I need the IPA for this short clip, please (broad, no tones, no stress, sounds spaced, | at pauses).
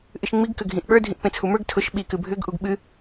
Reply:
ʔ ɨ ʃ ŋ͡m i ɡ k ʏ ɡʱ ĩ ʔ ɓ ə˞ dʱ ĩ ʔ p ẽ t͡sʰ u m ə˞ ɡ tʰ ʊ ʃ ɓ i k ɨ bʱ ʏ ɡ ʔ u ɡ ɓ ɨ